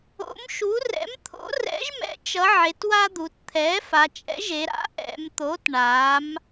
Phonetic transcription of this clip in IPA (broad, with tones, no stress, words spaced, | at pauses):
o̰˩˥mʃu˩˥ rɛ̰˩˥m t̪ʰo̰˩˥rɛ̰˩˥ʒmɛ̰˩˧t͡ʃʌ˩˧ ʕe˩˧twa˦d̪u˩˧t t̪ʰɛ˩˥fa˩˧t͡ʃʼɛ̰˩˥ʒe˩˧ ɾa̰˩˥ʔɛ̰˩˧mt̪o˩˥t ɳa˩˥m